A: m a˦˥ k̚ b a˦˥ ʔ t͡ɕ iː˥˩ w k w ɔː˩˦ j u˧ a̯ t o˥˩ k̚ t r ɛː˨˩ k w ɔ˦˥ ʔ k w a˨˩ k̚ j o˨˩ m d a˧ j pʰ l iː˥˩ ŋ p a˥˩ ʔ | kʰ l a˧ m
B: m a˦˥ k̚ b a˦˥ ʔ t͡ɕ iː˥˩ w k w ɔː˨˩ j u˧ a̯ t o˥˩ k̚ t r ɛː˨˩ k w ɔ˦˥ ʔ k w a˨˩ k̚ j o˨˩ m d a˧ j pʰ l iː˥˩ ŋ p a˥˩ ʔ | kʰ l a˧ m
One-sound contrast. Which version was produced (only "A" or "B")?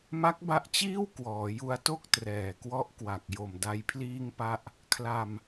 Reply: A